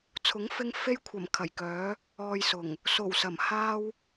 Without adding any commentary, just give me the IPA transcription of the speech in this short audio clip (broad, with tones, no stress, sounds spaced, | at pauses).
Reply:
t͡sʰ ʊ˨˥ ŋ f ɪ˧ ŋ f e˧ j kʷʰ ɐ˨˩ m kʰ ɐ˨˩ j k œː˨˧ | ɔː˨ j s ʊ˨˩ ŋ | s o˨˩ w s ɐ˨˩ m h aː˧ w